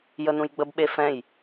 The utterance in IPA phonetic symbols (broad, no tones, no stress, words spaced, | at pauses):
jənũjɡ͡bəbɓe fɛ̃j